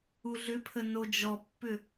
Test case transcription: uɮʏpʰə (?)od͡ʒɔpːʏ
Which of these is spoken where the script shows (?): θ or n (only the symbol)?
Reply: n